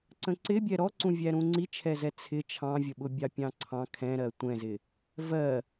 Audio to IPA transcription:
ǀ ə̃ ǀ ɪ bʲ ɛ ɾ ɔ ǀ ũ vʲ æ ɾ ũ ŋ͡ǀ i t͡ʃʰ ɛ z ɛ t͡sʰ ɪ t͡ʃʰ ɑ̃ vʲ ə ɓ ʊ bʲ ɑ pʲ ɑ̃ ǀʰ ɑ̃ kʰ ɛ̃ ɾ ɜ tʷ ɛ̃ z ɪ | v ɜ

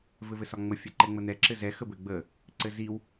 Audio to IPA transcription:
v ɘ v ɘ s ɒ ŋ͡m ə fʲ ɛ ǃ ɛ ŋ͡m ə n̪ ɛ ǁ ɘ z ɛ x ə b ɘ ɡ͡b ə | ǀ ɘ z i w

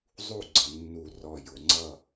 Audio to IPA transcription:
zˤ u˥˨ ɡ͡ǀ ə˩˧ nː u˧˩ r ɔ˧˩ j ʊ˩˧ ŋ͡ǀ ʌ˥˨

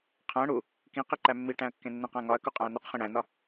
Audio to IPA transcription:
qʰ æ̃ ɽ u | k ĩ q i ǃ æ mː i ʈ æ̃ ɐ̯ kː ẽ nː ẽ q æ̃ ŋ ɒ ɐ̯ k u qʼ æ̃ ɐ̯ n u q χ ĩ ɽ æ̃ n ɒ

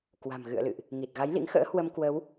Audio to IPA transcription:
k w a̤˨˩ m ɣ ɨ̰˧˨ ə̯ l ɨ̰˧˨ ʔ | ŋ i˨˩ t̚ ɣ a˨˦ j l ḭ˧˥ ŋ x ə̰ː˧˥ h w ə˧ m k w ə˨˦ w

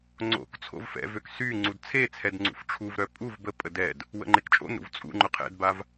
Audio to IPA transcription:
ŋ͡ǀ o̰ k t͡sʰ o̰ v f ɛ̰ v ø k s y ŋ͡ǀ u d t͡sʰ e t͡sʰ ɛ d ŋ͡ǀ ṵ f ʈ͡ʂʰ u v ɾ œ pʼ u v b ə pʼ ə d ɛ d | w ə̰ ŋ͡ǃ e k t͡ʃʼ o̰ n ɾ ṵ v t͡sʼ ṵ ŋ͡ǃ ʊ qʰ ɛ̰ d b a v

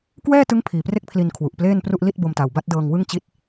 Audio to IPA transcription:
k w ɛː˥˩ t ɯ˦˥ ŋ pʰ iː˨˩ p r e˥˩ k̚ pʰ l i˧ n kʰ w u˨˩ ʔ p l eː˥˩ n p r u˥˩ ʔ l i˥˩ t̚ b o˧ m t a˨˩ w b a˥˩ t̚ d ɤː˧ ŋ w ɯ˥˩ ŋ t͡ɕ i˦˥ t̚

